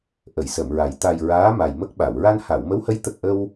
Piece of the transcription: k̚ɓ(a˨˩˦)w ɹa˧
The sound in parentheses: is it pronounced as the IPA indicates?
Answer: no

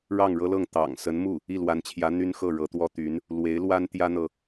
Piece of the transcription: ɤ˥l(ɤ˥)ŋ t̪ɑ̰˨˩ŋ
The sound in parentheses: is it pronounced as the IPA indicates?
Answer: no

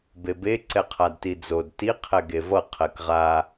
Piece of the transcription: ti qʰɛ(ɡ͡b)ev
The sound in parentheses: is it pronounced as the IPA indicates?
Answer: no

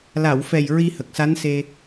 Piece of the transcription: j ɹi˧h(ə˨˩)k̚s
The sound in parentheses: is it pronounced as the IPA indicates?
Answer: yes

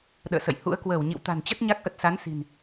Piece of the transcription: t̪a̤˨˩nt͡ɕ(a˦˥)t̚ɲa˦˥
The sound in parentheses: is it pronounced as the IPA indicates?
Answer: no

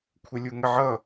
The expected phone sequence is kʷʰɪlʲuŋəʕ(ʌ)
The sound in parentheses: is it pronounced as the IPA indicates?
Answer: yes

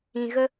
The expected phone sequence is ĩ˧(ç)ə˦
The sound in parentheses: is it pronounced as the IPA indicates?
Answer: no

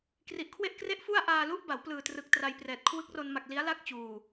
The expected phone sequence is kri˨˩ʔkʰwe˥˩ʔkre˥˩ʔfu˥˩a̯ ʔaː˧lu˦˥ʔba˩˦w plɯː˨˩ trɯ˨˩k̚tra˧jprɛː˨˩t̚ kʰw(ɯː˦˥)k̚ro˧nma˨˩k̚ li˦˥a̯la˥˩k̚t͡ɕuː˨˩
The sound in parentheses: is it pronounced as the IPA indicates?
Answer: no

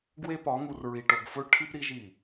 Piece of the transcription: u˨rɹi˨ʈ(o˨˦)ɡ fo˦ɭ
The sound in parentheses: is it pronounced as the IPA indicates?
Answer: no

